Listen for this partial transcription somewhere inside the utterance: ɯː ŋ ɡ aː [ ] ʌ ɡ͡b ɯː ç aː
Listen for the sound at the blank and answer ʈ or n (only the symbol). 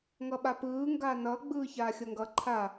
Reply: n